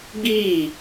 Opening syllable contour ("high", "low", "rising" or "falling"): falling